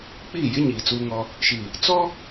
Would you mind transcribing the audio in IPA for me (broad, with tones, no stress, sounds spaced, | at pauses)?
k͡p iː˦˨ j ɪ˦ ɲ iː˨ t͡s uː˦ ŋ ɔ˦ | ʃ iː˨ | t͡s ɔ˦